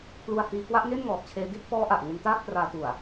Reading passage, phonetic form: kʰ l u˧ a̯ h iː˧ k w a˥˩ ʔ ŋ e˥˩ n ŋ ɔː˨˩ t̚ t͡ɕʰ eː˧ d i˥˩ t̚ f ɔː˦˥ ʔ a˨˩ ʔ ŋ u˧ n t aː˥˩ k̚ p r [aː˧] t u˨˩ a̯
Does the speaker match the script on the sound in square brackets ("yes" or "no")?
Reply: yes